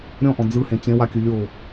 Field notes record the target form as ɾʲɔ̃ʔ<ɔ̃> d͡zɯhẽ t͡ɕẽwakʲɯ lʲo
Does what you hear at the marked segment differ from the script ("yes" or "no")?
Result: no